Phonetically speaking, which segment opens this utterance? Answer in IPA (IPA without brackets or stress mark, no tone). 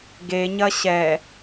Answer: ɡ